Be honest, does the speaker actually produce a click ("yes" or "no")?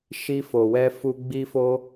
no